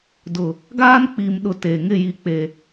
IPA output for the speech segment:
dʊ˨ | ɡaː˦nk͡pi˨mɗʊ˨ te˨ ŋɪ˦˨ji˨k͡pe˨

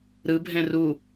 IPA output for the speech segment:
ɾɯbʱɛ̃ ru

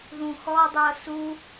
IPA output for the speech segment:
ðũxɔdˤɤ su

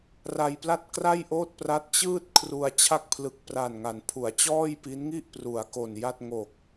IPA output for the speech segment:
ra˧jpla˥˩t̚ kra˥˩jʔoː˥˩t̚ pra˦˥t̚t͡ɕɯː˥˩t̚ kʰru˧a̯ t͡ɕʰa˥˩k̚ pʰlɯ˨˩k̚pra˨˩nŋa˩˦n pʰu˩˦a̯t͡ɕɔː˥˩jpi˦˥nŋi˥˩ʔ pru˩˦a̯ko˨˩nja˥˩t̚ ŋo˨˩k̚

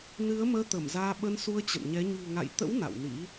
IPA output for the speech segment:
nɨ˨˦ə̯məː˧ t̪ə˧˩mzaː˧ ɓə˧nsu˧ə̯ t͡ɕə̰˧˨nɲɛ˨˦ ɲṳ˨˩ ŋa̰˧˨jt̪ə̰˧˥w na̰˧˨wnḭ˧˥

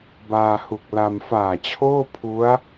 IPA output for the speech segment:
baː˧hu˨˩k̚la˧m faː˨˩t͡ɕʰoː˥˩ pʰu˦˥a̯

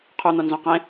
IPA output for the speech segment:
qʰun̪o nzõqẽ

